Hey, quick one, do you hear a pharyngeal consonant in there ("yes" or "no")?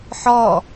yes